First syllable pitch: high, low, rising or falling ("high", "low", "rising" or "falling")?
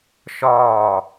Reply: falling